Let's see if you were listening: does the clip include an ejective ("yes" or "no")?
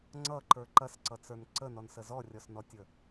no